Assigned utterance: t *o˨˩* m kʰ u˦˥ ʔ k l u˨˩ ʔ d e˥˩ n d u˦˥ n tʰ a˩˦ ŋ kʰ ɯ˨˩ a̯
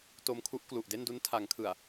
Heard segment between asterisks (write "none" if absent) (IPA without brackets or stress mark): o˧